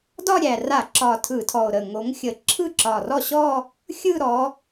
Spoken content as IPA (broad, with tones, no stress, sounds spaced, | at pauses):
d ɒ˥˧ ɾʲ æ˨˩ r a˧˩˧ ǁ ɒ˨˩ tʰ ɯ˧˩˧ tʰ ɔ˨˩ o̯ ɾ ə˨˩ ŋ o˨˦ ŋ xʲ ə˧˩˧ ǁʰ ɯ˥˩ ǁ ɒ˨˩ r ɔ˥˩ ɕ ɔ˥˧ | xʲ ɯ˥˧ ɾ ɔ˨˦